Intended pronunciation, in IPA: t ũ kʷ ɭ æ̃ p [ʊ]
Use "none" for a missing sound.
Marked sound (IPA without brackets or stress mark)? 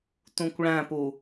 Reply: u